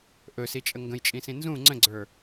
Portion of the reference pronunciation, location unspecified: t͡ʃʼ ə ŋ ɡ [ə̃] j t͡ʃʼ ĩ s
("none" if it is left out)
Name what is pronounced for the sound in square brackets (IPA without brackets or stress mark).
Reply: ə̃